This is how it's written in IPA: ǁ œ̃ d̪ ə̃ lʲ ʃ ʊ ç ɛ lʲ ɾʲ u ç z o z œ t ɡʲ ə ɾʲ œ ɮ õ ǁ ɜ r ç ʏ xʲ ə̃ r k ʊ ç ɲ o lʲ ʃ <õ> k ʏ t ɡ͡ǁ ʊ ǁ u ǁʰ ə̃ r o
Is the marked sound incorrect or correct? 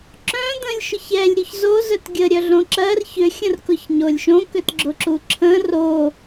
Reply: correct